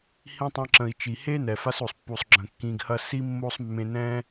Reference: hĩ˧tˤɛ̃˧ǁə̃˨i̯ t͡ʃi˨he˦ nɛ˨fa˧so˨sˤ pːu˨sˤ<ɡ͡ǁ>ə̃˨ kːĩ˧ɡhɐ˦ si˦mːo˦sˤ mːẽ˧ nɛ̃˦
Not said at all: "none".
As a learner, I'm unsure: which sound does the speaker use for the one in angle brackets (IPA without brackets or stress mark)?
ɡ͡ǁ